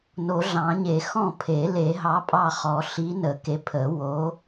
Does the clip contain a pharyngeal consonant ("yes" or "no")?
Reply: no